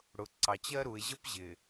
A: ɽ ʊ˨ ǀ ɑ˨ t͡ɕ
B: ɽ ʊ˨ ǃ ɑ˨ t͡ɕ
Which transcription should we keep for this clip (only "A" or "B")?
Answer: A